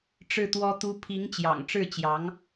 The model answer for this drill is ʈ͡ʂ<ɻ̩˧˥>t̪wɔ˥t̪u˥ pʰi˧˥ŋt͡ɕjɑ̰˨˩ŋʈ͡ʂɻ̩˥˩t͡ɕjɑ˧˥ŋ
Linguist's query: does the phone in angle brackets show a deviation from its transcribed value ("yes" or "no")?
yes